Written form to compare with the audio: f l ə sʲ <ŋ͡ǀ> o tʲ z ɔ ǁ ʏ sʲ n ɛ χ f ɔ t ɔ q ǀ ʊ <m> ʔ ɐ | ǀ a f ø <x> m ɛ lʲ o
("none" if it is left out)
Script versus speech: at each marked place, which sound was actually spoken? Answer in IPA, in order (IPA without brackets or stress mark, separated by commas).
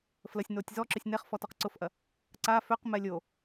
n, f, q